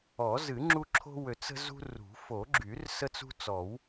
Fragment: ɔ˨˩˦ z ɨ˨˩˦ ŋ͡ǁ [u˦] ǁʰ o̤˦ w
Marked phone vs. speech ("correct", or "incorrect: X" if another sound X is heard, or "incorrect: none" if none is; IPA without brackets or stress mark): correct